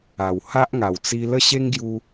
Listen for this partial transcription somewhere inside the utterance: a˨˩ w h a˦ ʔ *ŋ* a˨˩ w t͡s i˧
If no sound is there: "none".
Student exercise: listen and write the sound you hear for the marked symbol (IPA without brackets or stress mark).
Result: ŋ